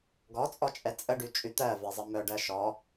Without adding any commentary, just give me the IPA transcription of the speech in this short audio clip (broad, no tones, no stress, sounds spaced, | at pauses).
ɡ ɔ t͡sʼ ɔ t͡ʃʼ ɛ t͡sʼ ə ɖ y t͡ʃʼ y t̪ ɜ v ɛ zˤ ə m œ ɖ ɜ ʃ ɔ